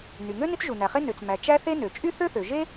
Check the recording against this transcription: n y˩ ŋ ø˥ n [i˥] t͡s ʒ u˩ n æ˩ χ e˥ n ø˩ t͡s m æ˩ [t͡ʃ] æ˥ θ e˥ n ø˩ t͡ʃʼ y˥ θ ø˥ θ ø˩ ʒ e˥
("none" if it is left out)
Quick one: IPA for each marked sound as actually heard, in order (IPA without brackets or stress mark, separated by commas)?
i˥, t͡ʃ